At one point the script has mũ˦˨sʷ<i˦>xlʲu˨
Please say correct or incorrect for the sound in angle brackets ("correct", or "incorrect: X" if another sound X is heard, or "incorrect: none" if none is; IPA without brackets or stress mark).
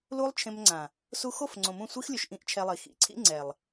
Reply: correct